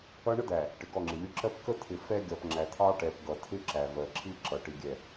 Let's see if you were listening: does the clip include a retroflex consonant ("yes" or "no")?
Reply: yes